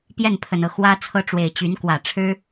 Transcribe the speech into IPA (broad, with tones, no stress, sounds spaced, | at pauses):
p j ɛ˥˩ n pʰ ə˨˩ n ɤ˥˩ x w ä˥ t͡sʰ ɤ˥˩ ʈ͡ʂ w e˨˩ ɪ̯ t͡ɕ y˧˥ n k w ä˨˩ ʈ͡ʂʰ ɻ̩˥